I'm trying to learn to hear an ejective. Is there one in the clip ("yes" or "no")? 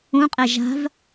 yes